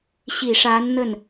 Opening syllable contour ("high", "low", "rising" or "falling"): low